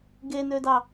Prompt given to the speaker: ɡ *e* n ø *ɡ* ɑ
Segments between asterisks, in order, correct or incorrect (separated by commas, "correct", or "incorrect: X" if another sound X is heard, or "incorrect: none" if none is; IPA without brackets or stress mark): correct, incorrect: d